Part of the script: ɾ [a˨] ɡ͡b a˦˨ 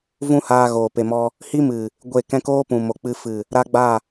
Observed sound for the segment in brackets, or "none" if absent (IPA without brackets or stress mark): a˦